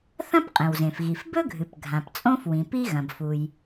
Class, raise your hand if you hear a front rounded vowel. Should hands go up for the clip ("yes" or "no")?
no